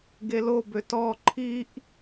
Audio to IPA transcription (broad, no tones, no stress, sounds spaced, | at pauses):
ɡ e l o b ø t ɔ ǃʰ i ʔ